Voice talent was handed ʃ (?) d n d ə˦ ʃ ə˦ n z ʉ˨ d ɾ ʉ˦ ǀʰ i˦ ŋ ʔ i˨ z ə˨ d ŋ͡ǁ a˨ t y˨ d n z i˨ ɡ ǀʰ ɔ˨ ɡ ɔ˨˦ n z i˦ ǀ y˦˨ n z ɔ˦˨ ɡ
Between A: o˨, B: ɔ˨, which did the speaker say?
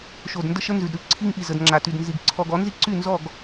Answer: A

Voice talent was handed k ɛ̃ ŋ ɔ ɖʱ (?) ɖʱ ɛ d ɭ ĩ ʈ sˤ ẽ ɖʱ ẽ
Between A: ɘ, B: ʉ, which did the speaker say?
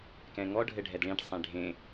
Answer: A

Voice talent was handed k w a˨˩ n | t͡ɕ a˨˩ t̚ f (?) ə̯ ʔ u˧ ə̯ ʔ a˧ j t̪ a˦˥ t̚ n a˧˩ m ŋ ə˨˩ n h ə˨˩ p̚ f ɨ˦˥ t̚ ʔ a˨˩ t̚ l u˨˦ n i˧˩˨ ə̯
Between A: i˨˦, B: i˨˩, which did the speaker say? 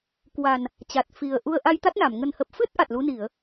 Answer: B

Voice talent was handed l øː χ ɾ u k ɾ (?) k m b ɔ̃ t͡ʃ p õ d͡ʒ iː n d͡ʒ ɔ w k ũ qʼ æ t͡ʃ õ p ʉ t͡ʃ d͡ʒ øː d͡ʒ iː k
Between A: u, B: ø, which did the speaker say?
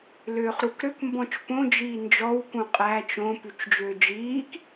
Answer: B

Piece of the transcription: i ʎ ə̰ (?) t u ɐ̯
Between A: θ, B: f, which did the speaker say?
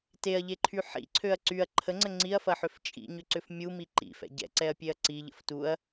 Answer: B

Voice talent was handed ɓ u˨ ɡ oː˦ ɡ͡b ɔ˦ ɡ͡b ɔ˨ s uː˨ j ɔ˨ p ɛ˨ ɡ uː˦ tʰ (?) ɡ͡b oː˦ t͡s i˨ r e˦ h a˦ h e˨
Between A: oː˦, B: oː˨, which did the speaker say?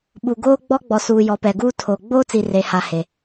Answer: B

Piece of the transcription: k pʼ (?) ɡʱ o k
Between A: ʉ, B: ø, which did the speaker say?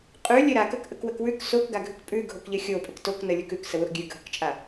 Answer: A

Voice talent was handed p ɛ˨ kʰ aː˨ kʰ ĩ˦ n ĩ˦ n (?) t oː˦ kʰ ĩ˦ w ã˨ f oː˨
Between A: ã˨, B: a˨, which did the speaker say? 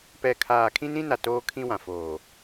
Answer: B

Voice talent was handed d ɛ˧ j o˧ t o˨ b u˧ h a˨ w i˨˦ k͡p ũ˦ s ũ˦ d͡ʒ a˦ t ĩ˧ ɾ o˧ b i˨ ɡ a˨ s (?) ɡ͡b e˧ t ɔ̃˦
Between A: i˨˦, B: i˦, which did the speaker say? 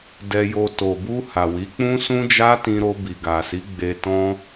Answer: A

